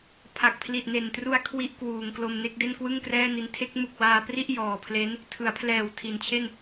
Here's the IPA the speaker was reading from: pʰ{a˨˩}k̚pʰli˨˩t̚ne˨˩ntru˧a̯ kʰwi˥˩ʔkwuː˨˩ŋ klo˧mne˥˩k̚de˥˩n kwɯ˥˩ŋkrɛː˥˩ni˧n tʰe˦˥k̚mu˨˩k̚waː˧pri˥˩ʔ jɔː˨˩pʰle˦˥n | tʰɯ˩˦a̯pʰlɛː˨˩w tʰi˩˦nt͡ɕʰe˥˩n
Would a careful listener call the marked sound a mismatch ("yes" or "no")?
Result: no